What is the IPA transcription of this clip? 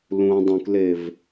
lũ dˤũklev

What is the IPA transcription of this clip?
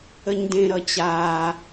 əɲdẽ ɾʌt͡ɕaː

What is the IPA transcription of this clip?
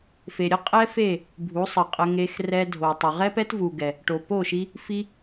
fe˨ɾʲɘ˦qʼɛ˦fe˦˨ | bʱu˨˦sˤɘ˨qʼə˧ŋe˧x rɛ˧dʱo˨tˤə˨ ʁɛ˦pɛ˦tvu˨ɡɛ˨ | ʈo˨po˦˨ʃi˧ | fi˦

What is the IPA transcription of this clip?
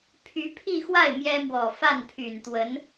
pʰy˧˥pʰi˥˧xwa˥˩ɪ̯ mjɛ˥mwɔ˨˩ fa˥˩npʰy˨˩nt̪wə˧˥n

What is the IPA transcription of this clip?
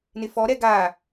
nɪfɔɾɛ ɡa

